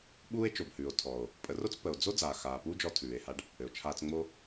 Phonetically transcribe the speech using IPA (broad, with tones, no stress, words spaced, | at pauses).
ɓuː˦e̯t͡ʃo˨bhʉː˨o̯ tʰɔ˨o̯ | pʼə˨˦ro˦t͡spə˨o̯ d͡zo˦ d͡zaː˨xaː˨puː˦d͡ʒɔ˧ tʰʉː˨e̯ha˦ɖ | ɘ˨o̯ t͡ʃʰaː˧t͡sŋ͡mo˦